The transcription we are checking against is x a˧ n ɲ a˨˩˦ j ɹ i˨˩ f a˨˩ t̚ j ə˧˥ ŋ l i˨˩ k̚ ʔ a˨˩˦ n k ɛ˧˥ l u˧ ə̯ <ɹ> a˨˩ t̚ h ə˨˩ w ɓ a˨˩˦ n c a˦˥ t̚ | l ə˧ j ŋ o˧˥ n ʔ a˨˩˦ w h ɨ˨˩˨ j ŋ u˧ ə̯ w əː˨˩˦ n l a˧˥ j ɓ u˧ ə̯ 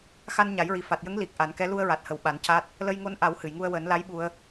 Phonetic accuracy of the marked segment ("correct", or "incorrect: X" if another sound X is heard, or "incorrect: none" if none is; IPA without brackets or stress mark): correct